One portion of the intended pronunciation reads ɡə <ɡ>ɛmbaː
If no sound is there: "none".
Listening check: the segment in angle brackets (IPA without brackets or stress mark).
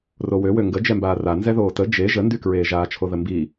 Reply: d͡ʒ